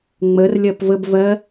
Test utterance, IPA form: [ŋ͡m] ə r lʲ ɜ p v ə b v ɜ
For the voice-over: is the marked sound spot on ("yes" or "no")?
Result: yes